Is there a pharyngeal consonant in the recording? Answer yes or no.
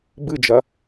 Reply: no